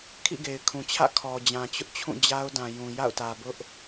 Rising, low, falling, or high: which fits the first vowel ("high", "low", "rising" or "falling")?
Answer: falling